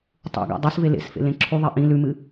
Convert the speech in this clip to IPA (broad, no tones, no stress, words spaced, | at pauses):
tˤṵɡa̰ dˤʉsve lḛsfḛ lẽǁʰuðˤe ʔĩ lʉmɨ